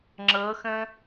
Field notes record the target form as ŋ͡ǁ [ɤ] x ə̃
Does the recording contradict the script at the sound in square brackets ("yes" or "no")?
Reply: no